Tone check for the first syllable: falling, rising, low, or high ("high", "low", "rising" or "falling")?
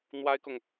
high